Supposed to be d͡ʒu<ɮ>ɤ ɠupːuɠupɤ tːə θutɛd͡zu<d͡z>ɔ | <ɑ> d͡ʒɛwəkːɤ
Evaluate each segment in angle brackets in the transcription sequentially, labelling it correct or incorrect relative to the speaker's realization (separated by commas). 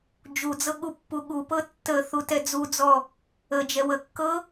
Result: incorrect, correct, incorrect